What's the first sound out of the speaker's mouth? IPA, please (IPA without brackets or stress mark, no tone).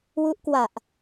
w